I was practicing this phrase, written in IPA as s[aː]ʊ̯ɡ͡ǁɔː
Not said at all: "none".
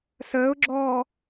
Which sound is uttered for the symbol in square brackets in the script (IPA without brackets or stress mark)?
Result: əː